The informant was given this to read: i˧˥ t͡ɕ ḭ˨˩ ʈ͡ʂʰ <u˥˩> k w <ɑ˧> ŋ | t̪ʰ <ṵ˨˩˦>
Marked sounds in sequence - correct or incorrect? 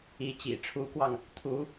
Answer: incorrect: u˧˥, correct, incorrect: u˧˥

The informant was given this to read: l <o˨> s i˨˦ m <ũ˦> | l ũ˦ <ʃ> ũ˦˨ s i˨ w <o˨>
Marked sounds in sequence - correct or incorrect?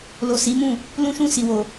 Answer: correct, incorrect: ũ˦˨, correct, correct

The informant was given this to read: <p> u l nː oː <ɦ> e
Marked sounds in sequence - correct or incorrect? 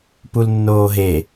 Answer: correct, correct

